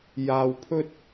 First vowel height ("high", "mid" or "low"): low